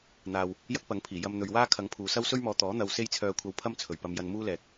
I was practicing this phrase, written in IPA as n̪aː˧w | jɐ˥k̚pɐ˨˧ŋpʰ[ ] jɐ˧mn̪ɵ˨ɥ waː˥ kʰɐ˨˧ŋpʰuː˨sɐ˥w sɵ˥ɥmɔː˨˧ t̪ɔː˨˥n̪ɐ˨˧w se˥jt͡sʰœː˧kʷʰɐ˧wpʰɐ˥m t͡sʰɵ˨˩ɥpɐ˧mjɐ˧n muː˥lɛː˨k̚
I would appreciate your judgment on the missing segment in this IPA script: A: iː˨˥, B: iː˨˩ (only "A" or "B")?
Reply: B